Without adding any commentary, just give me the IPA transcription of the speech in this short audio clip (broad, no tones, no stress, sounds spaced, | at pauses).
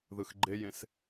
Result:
ð ɯ x ɡ͡ǃ e j ẽ s